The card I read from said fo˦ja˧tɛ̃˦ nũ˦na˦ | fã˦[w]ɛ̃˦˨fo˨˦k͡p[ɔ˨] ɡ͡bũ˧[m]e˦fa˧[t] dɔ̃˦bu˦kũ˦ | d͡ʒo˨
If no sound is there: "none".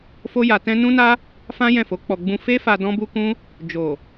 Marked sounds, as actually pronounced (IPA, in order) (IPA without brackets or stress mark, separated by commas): j, ɔ˧, f, none